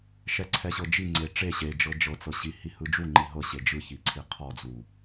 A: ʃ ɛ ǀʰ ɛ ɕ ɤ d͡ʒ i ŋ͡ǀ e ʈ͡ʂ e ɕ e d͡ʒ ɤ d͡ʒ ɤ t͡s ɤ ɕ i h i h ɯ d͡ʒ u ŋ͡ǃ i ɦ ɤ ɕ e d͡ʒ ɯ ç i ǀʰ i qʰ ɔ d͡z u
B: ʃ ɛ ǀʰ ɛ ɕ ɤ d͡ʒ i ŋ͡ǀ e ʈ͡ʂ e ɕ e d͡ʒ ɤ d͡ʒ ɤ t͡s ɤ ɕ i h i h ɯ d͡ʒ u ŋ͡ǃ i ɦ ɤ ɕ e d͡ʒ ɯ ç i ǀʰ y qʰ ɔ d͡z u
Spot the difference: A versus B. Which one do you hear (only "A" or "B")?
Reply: A